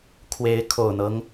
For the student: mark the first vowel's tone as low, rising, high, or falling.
rising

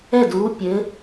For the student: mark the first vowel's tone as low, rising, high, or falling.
falling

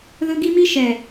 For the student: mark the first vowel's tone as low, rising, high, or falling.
high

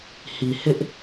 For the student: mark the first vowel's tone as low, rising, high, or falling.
low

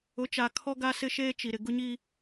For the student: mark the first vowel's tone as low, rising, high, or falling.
rising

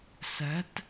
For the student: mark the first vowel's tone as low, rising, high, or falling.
rising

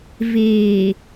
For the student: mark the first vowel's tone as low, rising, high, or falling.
low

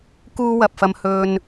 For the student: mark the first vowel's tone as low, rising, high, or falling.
high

